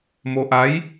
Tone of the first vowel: low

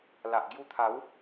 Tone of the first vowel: low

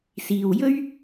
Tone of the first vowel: low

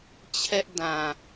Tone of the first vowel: high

